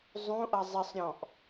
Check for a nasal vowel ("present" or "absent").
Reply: present